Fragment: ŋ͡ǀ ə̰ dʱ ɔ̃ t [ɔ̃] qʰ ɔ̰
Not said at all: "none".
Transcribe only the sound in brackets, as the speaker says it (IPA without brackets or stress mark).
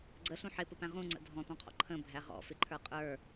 ɔ̃